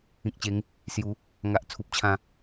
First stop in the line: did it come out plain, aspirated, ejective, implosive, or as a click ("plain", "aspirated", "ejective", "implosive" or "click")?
plain